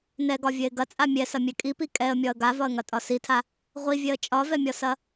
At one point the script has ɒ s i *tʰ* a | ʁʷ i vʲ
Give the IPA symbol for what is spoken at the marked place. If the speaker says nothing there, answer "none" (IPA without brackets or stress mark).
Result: tʰ